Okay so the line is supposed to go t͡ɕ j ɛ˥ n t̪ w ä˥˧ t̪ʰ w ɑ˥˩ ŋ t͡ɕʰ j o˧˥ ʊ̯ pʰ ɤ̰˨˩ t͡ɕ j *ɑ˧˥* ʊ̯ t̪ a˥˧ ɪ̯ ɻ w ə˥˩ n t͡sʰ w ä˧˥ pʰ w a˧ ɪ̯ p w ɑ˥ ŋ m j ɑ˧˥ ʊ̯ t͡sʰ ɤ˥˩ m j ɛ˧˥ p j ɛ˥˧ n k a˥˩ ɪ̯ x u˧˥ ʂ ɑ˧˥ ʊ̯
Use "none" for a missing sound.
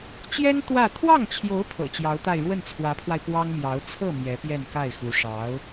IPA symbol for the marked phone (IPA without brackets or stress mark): ɑ˧˥